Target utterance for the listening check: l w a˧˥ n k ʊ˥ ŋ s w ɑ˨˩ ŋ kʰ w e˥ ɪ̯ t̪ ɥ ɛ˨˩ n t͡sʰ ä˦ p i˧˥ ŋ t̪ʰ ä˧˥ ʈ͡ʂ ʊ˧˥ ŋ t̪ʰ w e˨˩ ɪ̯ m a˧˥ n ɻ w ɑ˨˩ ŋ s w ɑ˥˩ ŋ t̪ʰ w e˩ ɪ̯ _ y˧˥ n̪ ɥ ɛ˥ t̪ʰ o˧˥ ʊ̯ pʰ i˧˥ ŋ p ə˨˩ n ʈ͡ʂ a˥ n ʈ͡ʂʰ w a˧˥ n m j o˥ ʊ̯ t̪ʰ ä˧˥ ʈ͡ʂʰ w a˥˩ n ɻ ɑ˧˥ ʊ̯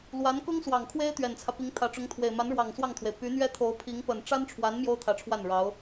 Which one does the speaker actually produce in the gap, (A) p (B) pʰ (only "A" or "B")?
A